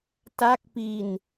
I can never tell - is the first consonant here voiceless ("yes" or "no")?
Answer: yes